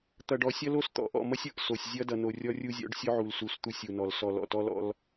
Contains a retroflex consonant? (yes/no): yes